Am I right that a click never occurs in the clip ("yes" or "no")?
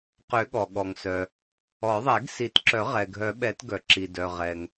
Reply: no